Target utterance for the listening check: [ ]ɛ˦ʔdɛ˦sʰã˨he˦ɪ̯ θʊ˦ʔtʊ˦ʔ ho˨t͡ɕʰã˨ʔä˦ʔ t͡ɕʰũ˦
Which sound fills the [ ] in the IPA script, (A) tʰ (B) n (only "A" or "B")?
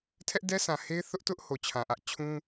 A